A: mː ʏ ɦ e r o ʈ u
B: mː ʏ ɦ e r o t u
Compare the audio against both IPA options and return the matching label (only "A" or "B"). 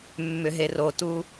B